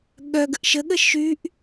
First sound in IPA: ɠ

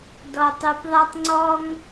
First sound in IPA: d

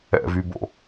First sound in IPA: ɛ̰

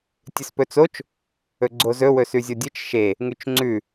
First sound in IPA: tʲ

